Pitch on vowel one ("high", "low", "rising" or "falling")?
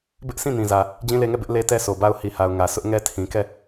high